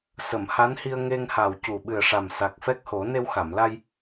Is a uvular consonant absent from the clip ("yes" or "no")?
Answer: yes